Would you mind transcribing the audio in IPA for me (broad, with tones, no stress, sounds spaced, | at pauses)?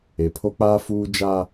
e˨ pʰ o˦ k͡p aː˦ f uː˦ d͡ʒ aː˦